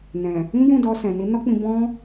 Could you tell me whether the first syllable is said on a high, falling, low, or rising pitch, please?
low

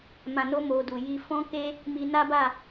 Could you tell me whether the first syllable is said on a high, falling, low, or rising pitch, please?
low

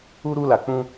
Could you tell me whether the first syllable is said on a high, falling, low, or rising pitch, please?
high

